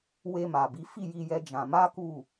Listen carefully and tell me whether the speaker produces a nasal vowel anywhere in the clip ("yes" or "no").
yes